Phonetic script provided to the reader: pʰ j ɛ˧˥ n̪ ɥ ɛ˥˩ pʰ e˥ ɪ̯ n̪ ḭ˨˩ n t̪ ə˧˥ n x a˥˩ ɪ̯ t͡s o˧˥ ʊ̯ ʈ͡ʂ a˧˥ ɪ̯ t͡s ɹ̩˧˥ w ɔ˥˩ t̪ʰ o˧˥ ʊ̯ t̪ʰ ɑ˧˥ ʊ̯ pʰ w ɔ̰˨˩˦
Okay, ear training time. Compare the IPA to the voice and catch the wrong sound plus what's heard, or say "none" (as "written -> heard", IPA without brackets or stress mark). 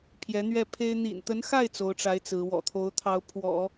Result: ɔ˥˩ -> ɔ̰˨˩